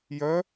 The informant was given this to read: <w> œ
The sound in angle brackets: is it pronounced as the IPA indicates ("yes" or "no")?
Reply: no